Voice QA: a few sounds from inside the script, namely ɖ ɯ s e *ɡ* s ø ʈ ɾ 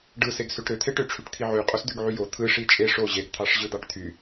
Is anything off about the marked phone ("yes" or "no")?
no